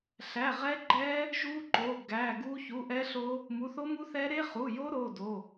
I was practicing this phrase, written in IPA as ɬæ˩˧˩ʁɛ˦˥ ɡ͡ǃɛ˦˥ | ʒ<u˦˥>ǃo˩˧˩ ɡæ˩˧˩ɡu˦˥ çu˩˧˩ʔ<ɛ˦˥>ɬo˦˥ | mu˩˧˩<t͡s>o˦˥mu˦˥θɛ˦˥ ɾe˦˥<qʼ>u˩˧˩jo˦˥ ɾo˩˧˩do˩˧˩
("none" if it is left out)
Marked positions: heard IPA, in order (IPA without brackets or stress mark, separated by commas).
u˦˥, ɛ˦˥, θ, χ